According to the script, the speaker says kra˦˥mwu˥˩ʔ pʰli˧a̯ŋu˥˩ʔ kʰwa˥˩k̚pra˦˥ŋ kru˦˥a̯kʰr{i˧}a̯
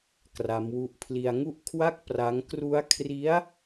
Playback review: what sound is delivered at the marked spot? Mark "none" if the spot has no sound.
i˦˥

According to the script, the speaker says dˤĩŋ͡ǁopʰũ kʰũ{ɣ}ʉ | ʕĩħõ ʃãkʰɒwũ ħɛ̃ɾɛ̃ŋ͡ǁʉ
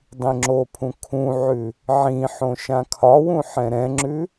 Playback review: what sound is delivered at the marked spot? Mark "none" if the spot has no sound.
ʕ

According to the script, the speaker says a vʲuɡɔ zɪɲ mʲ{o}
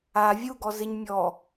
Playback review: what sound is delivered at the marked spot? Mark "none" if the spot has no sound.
ɔ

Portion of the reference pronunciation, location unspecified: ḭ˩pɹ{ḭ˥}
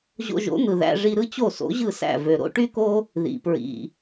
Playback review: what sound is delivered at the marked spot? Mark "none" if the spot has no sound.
ḭ˩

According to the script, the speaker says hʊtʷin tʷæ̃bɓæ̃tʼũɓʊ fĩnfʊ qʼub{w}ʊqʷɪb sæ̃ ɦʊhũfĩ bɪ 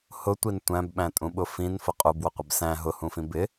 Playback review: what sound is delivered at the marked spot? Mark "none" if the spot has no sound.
w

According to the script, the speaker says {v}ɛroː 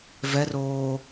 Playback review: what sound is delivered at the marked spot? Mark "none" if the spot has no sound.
v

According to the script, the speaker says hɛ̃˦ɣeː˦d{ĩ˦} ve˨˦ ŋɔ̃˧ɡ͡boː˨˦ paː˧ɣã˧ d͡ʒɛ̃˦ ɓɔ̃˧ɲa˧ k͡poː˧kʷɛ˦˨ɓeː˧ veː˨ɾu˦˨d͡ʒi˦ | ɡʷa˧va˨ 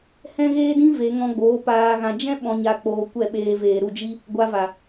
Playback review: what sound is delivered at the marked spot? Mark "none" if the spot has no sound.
ĩ˦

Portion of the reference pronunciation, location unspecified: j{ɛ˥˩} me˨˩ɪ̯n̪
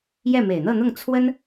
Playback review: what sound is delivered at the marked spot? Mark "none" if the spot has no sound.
ɛ˥˩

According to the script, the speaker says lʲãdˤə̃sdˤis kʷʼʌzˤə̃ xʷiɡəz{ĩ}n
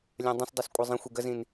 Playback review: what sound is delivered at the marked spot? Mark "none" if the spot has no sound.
ĩ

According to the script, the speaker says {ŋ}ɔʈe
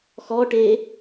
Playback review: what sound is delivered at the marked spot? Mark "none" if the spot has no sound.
x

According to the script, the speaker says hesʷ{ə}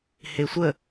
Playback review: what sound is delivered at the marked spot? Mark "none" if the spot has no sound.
ə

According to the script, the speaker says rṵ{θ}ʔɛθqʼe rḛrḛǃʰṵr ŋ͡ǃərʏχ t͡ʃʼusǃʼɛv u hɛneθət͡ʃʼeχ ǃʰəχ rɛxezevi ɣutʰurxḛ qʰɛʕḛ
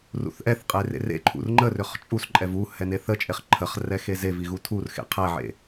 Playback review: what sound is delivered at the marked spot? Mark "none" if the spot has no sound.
θ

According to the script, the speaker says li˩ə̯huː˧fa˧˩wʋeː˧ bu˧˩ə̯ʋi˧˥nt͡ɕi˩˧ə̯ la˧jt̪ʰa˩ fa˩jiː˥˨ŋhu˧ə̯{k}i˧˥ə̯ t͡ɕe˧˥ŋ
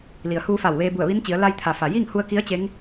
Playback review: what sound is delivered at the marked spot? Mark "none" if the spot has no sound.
k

